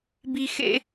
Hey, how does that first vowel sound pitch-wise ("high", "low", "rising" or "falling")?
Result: high